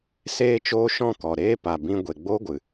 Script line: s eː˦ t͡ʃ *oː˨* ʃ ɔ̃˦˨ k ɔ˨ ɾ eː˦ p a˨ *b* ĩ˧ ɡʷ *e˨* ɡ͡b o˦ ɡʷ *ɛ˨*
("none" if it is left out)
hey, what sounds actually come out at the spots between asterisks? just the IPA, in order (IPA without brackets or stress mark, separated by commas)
oː˦, b, e˨, ɨ˨